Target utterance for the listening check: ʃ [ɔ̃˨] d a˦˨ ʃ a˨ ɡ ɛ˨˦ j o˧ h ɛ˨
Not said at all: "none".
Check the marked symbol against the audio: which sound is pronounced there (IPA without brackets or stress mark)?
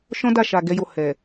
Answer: ɔ̃˦